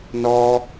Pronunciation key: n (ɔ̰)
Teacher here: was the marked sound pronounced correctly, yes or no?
no